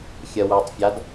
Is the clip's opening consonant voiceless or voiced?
voiceless